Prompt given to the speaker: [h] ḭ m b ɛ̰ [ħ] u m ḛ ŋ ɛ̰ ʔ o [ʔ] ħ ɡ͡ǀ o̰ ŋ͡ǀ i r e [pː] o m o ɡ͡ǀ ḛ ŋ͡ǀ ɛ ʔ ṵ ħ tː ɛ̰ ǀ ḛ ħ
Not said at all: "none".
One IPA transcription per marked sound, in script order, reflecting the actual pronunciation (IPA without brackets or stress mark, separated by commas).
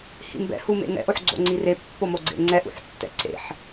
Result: h, h, none, pː